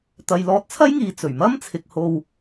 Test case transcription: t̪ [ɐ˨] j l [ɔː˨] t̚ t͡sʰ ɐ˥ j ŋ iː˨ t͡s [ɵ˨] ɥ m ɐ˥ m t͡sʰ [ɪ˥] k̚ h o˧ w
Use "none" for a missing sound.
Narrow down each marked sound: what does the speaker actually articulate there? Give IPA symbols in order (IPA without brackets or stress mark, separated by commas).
ɐ˨, ɔː˧, ɵ˨˩, ɪ˨